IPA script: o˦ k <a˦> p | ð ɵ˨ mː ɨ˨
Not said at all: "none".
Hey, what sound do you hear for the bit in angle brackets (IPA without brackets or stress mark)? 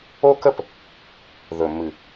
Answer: ə˦